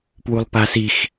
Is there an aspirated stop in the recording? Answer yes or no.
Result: no